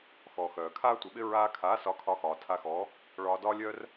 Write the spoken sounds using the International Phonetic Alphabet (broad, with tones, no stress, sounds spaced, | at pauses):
x ɔ˨ x œː˨ kʰ aː˦ tʷ ɪ˨˦ ɓ ɪ˦ ɹ aː˧ kʰ aː˨˦ s ɒ˨˦ kʰ ɒ˧ x ɒː˨ tʰ a˧ x ɔː˨˦ | ɭ ɒː˧ d ɒː˦ lʲ œː˦ r